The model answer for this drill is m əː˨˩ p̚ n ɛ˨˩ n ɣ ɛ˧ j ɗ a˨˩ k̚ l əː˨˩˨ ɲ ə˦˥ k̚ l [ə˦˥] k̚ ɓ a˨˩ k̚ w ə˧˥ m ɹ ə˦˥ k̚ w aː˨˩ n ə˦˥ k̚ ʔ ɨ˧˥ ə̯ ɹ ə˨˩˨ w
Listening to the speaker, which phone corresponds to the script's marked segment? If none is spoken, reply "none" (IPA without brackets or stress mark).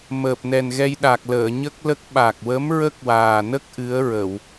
ə˦˥